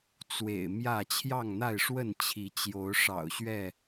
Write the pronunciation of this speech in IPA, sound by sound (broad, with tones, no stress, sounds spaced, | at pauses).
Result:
t͡s w ḛ˨˩ ɪ̯ m j ä˥˨ t͡ɕʰ j ɑ˥˨ ŋ n̪ a˥˨ ɪ̯ ʂ w ə˥˨ n t͡ɕʰ i˨˦ t͡ɕ j o˨˦ ʊ̯ ʂ ɑ̰˨˩ ʊ̯ ɕ ɥ ɛ˥˨